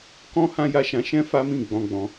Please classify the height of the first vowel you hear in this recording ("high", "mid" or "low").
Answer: mid